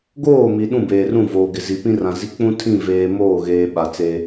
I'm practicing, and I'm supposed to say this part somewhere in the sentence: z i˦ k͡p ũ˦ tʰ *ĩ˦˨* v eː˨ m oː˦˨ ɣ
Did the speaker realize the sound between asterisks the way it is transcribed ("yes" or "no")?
yes